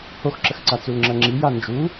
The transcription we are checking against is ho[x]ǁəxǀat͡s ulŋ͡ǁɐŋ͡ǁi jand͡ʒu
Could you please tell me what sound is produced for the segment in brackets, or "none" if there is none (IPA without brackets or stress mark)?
x